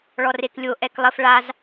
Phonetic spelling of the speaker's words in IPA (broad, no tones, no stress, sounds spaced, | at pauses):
ɭ ɔ r e k lʲ o ʔ ɛ k lˠ ə f ɭ a z